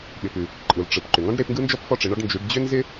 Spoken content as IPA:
ɓ ɪ˨ p ʉ˨ | ǃʼ ɯ˨ l ʈ͡ʂ ɯ˨ p ǃ ʏ˨ ŋ ɔ̃˥ ɖ ɾ e˨˦ p ŋ ɡ ɯ˥ n d͡ʒ ɔ˥ p f ɔ˥ ʈ͡ʂ ɪ˨˦ ɳ ɔ˥ ɖ n d͡ʒ ʉ˨˦ ɖ d͡ʑ ʏ˥ n z ɪ˥

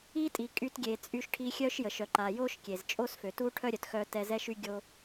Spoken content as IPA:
i˧ tʼ i˩ kʼ y˧ t ɡʲ e˩ t͡sʼ y˧ ʃ ʈʰ i˧ xʲ œ˥ ʃ j ə˩ ʃ œ˩ ǃ a˩ j o˥ ʃ kʲ e˩ z t͡ʃʼ o˥ s f ø˩ t u˥ ʈʰ œ˥ ɾʲ œ˩ t x œ˧ t ɛ˧ z ɛ˥ ʃ y˥ ɡʲ o˥

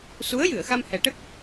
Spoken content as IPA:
s u˧˥ ə̯ j ɨ˨˩˨ ə̯ x a˧ m h ɛ˨˩˦ ʈ ə˦˥ k̚

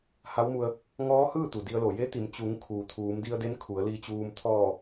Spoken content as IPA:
h a˧˥ w m u˧ ə̯ | ŋ ɔː˧˥ h ɯː˥˨ t̪ u˩ d i˧ ə̯ l o˧˩ j e˧˥ t̪ i˩˧ m t͡ɕ u˩˧ ŋ kʰ uː˩ t̪ʰ uː˩˧ m d i˧ ə̯ d e˧˥ n kʰ u˩˧ ə̯ l i˧ t͡ɕ uː˧ m t̪ʰ ɔː˧˩

